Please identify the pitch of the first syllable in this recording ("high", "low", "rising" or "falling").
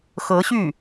rising